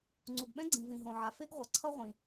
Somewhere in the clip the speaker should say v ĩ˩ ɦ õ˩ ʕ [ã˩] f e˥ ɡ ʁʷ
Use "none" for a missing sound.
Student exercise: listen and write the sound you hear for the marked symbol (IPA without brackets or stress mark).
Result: a˩